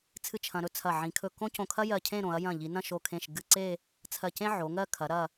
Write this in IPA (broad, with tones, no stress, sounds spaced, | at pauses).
t͡sʰ ɨ˥˧ t͡ʃʰ ɐ̃˧ ɾ ɵ˥ t͡sʰ ɐ˧˩ ʕ ĩ˩˧ kʰ ɵ˧˩ k õ˥ c õ˧˩ kʰ ɐ˥ j ɜ˧˩ cʰ ẽ˥˧ ɾ õ˩˧ ɐ̯ j ɐ̃˧˩ ʎ i˩˧ n ɐ̃˥˧ ʃ o˧˩ kʰ ẽ˧˩ ʃ ɡ ɨ˧ ǀ e˥˧ | t͡sʰ ɜ˧˩ c ẽ˥ ʕ o˩˧ ŋ ɜ˥˧ kʰ ɐ˩˧ ɾ ɐ˧˩